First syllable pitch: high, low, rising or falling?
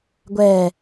low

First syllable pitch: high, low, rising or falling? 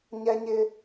high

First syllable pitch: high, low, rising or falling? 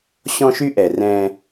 high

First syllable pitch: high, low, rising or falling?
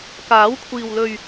rising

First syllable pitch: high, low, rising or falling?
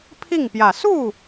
falling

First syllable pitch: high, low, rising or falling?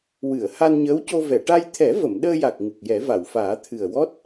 low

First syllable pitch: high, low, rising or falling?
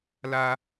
high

